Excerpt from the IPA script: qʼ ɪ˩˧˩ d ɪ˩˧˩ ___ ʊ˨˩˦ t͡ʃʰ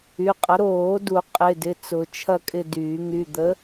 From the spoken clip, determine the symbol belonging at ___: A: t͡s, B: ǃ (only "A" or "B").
A